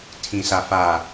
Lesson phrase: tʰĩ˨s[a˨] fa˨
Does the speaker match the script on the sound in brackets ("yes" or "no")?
yes